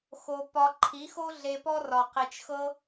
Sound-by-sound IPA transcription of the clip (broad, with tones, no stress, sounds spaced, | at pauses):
x o˧ p ɒ˧ ǃʰ i˨˦ x o˦ ɮ e˧ p ɔ˦ r ɒ˨ q i˨ t͡ʃ x ɤ˦